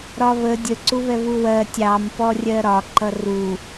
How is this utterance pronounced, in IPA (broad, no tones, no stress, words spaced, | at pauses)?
ɾɒβə dʲə ǀuβɛβuwɜ tʲɑmpɔrʲɜ ɾɒ ǃʌru